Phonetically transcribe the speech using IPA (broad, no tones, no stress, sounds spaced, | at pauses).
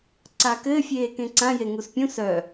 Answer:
ǀ a k ɘː fʲ eː k ẽ ǀ ã j e ŋ u s pʲ ũ s œ